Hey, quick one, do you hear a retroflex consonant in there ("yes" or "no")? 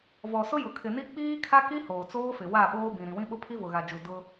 no